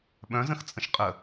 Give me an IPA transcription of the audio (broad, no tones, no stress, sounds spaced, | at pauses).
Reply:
ɓ œ̃ z ə̃ x t͡sʼ ə̃ ʃ qʼ ə